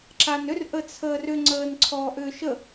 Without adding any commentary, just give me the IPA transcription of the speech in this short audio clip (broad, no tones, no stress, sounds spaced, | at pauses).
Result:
ǁ a n ʏ r ʔ ə t͡sʰ əː r ʏ ŋ͡ǀ əː n ǀʰ ɔː ʔ ʏː ʃ ə